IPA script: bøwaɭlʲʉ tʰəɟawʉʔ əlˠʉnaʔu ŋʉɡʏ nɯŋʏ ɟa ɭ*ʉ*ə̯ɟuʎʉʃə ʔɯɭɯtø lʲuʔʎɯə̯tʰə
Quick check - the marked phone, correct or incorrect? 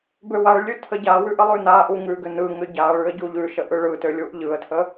correct